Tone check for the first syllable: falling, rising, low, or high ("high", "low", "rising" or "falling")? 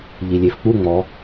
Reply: low